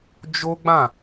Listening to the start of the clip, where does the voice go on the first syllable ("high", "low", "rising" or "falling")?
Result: high